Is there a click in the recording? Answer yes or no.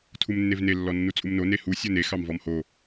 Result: no